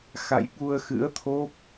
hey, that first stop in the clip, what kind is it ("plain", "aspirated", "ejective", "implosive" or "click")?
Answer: implosive